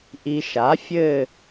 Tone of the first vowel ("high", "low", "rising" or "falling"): low